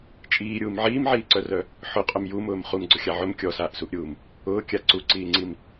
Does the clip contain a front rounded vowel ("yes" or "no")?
yes